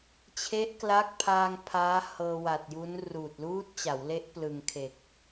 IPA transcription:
t͡ɕʰ e˦˥ ʔ k l a˦˥ k̚ pʰ aː˧ ŋ pʰ aː˦˥ h ɤː˧ w a˨˩ t̚ j u˦˥ n r uː˨˩ t̚ l uː˦˥ t̚ t͡ɕ a˩˦ w l e˦˥ ʔ p l ɯ˨˩ ŋ kʰ e˨˩ k̚

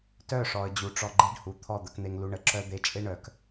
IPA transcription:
t œ˦˨ ʂ ɔ˨ ə̯ d͡ʑ u˨ ʈ͡ʂ ɔ˧ ɡ͡ǃ e˦ ɖ h u˨ t̪ʰ ɔ˦˨ d̪ ə˧ k n̪ e˧ ŋ l u˧ ɳ ə˧ ǁ œ˦ d̪ e˦ t͡ʃʼ e˦ ɳ œ˨ k

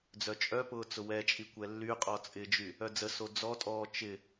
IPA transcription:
d͡z œ t͡ʃʼ œ p ʊː t͡s ʊ w ɛ t͡ʃʼ i kʷ ɛ lː y qʼ ɔ t͡sʼ ɪ d͡ʒ y | œ d͡z ə s o d͡z ɔ tʼ ɔː t͡ʃ ɪ

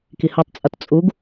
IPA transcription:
k i h ɯ tˤ t͡sʼ ʌ t t͡sʼ u ɡ

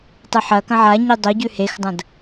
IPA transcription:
tˤ ɨ ħ ɐ k ɐ̃ ʕ a ɲ i dˤ o ɟ ʉ h e x dˤ ɐ̃ d

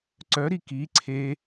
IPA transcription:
ǀ œ ɾ i k i ǀʰ e

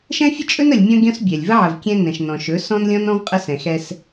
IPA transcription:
ʃ ɛ̃˦ fʲ ə˦ t͡ʃʼ ɵ˦ n ə˨ lʲ mʲ ɔ̃˦ ɡʲ ɔ̃˦ s bʲ ɛ˨ lʲ v ə˦ ʕ ə˨ v kʲ ɛ̃˦ n ɛ̃˨ ʃ n ɔ̃˨ ʃ ɵ˨˦ s ɔ̃˦ n lʲ ɔ̃˦ n ɔ̃˦ v qʼ ə˦ s ɛ̃˨ x ɛ˦ s

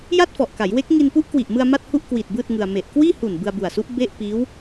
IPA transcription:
j a˥˩ t̚ f ɔ˨˩ ʔ k a˩˦ j w e˦˥ k̚ ŋ i˧ n p u˦˥ ʔ k w i˨˩ ʔ m ɯ˧ a̯ m a˥˩ t̚ h u˥˩ ʔ k w iː˨˩ t̚ b ɯː˥˩ t̚ ŋ ɯ˧ a̯ m e˨˩ ʔ k w iː˥˩ h u˨˩ n b ɯ˧ a̯ b u˨˩ a̯ s u˦˥ ʔ b e˥˩ ʔ p iː˦˥ w

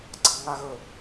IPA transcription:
ɡ͡ǀ ɑ ŋ a ɣ ɵ

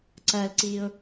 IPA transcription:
ǀ ɐ l ǀ i ʊ̯

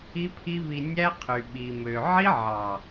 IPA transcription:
i˦ pʰ i˦ β i˧ nʲ æ˦ qʰ y˨ ɓ i˨ m ø˨ ʕ i˦ ʕ ɑ˨

